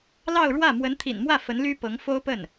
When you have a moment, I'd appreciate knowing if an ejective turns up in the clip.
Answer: no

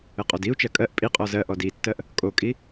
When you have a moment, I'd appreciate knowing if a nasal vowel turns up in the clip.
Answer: no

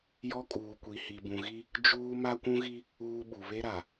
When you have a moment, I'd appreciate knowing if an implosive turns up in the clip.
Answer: yes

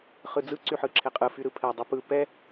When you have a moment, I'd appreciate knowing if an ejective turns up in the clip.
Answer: yes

